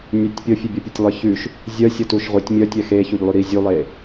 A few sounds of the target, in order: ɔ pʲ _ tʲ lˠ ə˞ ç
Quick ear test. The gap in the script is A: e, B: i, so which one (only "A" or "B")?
A